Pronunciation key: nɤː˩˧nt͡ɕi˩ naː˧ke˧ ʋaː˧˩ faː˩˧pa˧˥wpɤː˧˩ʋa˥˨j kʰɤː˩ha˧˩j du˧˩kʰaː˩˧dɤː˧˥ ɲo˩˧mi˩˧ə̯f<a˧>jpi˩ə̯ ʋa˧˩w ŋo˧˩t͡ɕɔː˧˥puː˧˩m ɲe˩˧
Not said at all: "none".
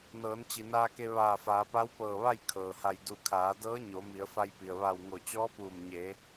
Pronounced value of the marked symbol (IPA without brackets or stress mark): a˧